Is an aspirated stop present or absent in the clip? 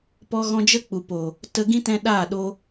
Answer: absent